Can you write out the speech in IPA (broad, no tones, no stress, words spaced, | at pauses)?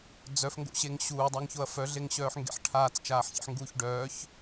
d͡zœfŋɡo̰ɕeŋ ɕuːdˤaŋçoɐ̯ fœɮeŋɕœːħŋɡḛħ ʈʰaːt͡st͡ʃaːħçḛħŋɡuːç ɖœːç